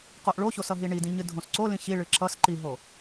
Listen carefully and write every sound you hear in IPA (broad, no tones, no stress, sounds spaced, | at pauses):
q o ʔ ɭ o ç o s ʌ ɦ i ɳ i d ĩ ɲ ɨ dʱ õ s ǀ o l ĩ ç i ɭ ɨ ǁ ʌ s ǃ i ɦ o